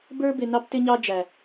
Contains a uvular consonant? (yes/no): no